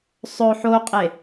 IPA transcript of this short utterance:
sˤɵ ħoqʼe

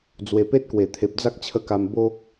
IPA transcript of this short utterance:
d͡zwe˨˩pe˦t̚kwe˨˩ t̪ʰe˨p̚d͡za˦k̚t͡ɕʰə˧ka˧m bo˦k̚

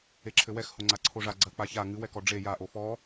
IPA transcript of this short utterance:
eǁʰɘwɛxho ŋ͡ǀaǀʰoʐa ɡ͡ǀɐ k͡paça ŋɨwɛkɔ ɖ͡ʐe jaʔo fɔ

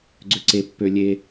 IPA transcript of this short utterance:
ɡ͡ǀøǀe pːø lʲe

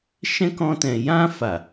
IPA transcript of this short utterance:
ʃɛ̃˦kɔ̃˧tɛ̃˨ jã˧fa˨

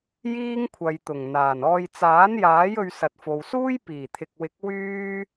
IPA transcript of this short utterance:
jiː˥ŋkʷʰɐ˨jt̪ʊ˨˩ŋ n̪aː˨˩nɔː˧j t͡saː˨˥njaː˨˥j ɵ˧ɥsɐ˨t̚fo˨w suː˥jpiː˨˩t̪ʰɪ˨k̚wɪ˨˥k̚ wyː˥

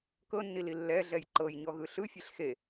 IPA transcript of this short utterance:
kɤnːili lːɛɮɛj ǃɤjɲɔɣɯ ɬɯfʲeɬ xe

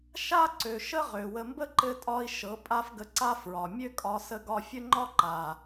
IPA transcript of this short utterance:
ʃa˦ ǀø˨ ʃə˦ ʁø˨wə˧ mbə˦ǃɘ˧tʼɒ˧i̯ ʃɤ˨˦ pʼa˦fɡə˧ǀa˦ fɹɒ˨ mʲø˦kʼɒ˧sə˧ ɡɒ˦ fʲə˦ŋ͡ǃɒ˦ǃa˨

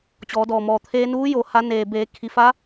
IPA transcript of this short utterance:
t͡ɕɔː˩˧dɔː˩mɔː˩ t̪ʰeː˧nuː˧˥ jo˩˧ ha˧˥neː˩ beː˩˧kʰi˩fa˧˥

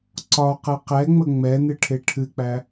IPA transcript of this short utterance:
ǀɒqɨ qɛŋ͡mə ŋ͡mɛnɨ ʈʰeʈʰɨk͡pæ

